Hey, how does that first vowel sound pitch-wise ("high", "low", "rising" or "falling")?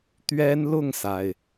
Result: high